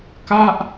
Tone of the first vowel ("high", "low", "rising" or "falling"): falling